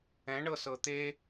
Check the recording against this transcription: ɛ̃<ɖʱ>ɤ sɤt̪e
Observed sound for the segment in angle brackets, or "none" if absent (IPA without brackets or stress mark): ɳ